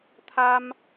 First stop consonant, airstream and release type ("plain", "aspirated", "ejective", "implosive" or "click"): aspirated